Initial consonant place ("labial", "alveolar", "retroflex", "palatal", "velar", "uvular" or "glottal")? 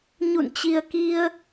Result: palatal